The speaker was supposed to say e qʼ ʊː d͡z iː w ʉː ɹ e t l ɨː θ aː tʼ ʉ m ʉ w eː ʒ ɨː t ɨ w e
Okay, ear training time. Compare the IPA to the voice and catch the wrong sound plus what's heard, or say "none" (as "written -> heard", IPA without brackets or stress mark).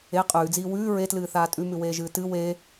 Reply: ʊː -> ʉː